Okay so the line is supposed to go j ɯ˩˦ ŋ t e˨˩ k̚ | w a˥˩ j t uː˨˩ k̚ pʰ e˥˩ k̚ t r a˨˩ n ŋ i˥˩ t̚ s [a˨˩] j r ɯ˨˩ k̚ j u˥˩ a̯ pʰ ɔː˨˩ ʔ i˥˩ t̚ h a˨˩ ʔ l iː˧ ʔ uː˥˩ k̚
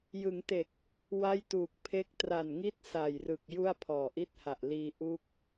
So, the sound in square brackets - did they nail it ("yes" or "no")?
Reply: yes